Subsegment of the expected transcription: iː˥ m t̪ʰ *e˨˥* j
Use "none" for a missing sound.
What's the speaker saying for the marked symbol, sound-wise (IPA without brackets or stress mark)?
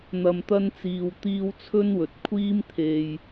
e˧